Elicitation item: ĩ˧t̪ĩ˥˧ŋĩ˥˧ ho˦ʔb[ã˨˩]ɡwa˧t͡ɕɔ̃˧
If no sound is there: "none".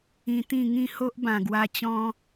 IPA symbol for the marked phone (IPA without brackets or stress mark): ã˨˩